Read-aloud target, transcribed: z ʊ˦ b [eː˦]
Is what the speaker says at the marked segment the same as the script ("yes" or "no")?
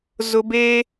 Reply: yes